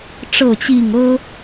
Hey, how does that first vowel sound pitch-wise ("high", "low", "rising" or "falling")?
falling